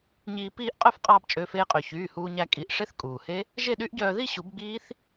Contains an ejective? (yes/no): yes